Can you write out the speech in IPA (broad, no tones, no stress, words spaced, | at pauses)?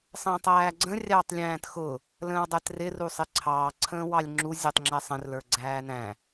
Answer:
sˤə̃ːtˤæːɡ͡ǀə̃ rʲɑːtˤlʲæ̃ːtxʊ | lə̃ːwdˤɛtrɪ rusˤɪǀʰɑː ǀʰə̃ːwɑlʲŋ͡ǁu zʲɛtˤŋ͡ǁɛsˤə̃r lə˞ɡ͡ǀæːnæ̃